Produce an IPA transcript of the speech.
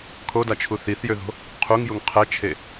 kʰ o d a t͡ʃʰ u θ i θ j ø ð o̤ | qʰ u ŋ j u ŋ qʰ ɛ t͡ʃʰ e

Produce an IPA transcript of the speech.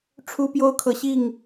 ʈ͡ʂʰ u˦ p j o˦ ʊ̯ kʰ ɤ˨ ɕ i˥˨ ŋ

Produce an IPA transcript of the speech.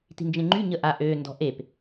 t i̤ n d͡ʒ ẽ ŋ͡ǃ y ɲ ə ʔ a ʔ ø n d ɔ̤ ʔ e p

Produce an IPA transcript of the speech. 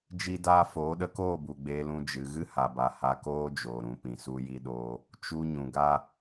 d͡ʒ i˦ d aː˦ f oː˨˦ ɗ ə˧ k oː˦˨ b u˨ ɡ͡b eː˧ l ũ˧ d͡ʒ ɨ˨ ɣ ɨ˦ h a˨ b a˨ h a˧ k oː˦ d͡ʒ oː˨ ɾ ũ˨ p ĩ˨ s u˧ j i˧ ɗ oː˧ | t͡ʃ u˧ ɲ ũ˨ ɡ a˦

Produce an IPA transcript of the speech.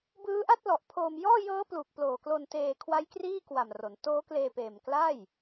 b ɯː˦˥ ʔ a˥˩ t̚ l ɔ˨˩ ʔ pʰ oː˧ m j ɔː˥˩ j ɤː˦˥ p l uː˨˩ k̚ p l oː˨˩ k l o˧ n t eː˧ kʰ w a˦˥ j k r iː˥˩ k w a˨˩ m r o˩˦ n t oː˦˥ k l eː˧ p eː˨˩ m k l a˥˩ j

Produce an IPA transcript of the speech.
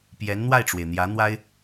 p j ɛ˧˥ n n̪ w a˥˩ ɪ̯ ʈ͡ʂ w e˩ ɪ̯ n̪ j ä˧˥ n̪ w a˥ ɪ̯

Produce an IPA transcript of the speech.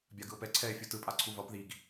bʲ a ɡ ɯ o̯ p ɛ ǀʰ ɛ e̯ fʲ u t ɯ pʼ a ǀʰ u v ʌ p ð i ɡ

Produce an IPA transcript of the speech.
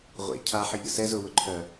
ʁʷ ḛ cʰ a ħ ə ʎ ə̰ s ɛ z ʊ w ʊ ǃʰ œ

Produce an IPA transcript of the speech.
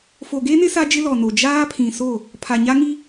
f o˨ ɡ e˦ n ɪ˦ s a˦ d͡ʒ ɪ˦ l ɔ˨ n o˨ d͡ʒ aː˦ pʰ ĩ˨ s o˦˨ | pʰ a˨ ɲ a˦ ŋ i˦

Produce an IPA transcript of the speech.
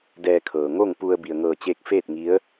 d ɛː˧ kʰ ɤː˩ ŋ o˥˨ ŋ p u˧ ə̯ b i˩ ə̯ ŋ ɤː˧˩ t͡ɕ eː˧ k̚ f eː˥˨ t̚ ŋ i˧˥ ə̯

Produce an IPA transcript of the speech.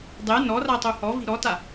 dˤ e n ɔ r a tˤ u h ɔ v i̤ ɾ ɔ t a

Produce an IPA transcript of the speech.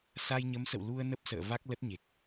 s a˧ j ɲ ə˨˦ m s ə̰˧˨ w l u˧ ə̯ n ə˦˥ p̚ s ə̰ː˧˨ v a˦˥ k̚ l ə˦˥ t̚ ɲ e˨˩ k̚

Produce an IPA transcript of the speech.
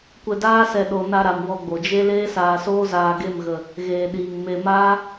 kʷ ɛ˧ d aː˦ s ɛ˧ ɗ o˨ n a˧ ɾ a˨ m w ɔ˧ ɡ͡b o˨ d͡ʒ e˦ l eː˦ s aː˧ s oː˦ z aː˧ ɡ e˦˨ m ɣ ə˨ | ɣ eː˨ ɗ iː˨ ŋ m e˨ m aː˦

